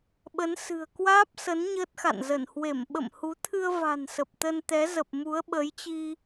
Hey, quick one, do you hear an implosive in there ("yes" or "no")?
yes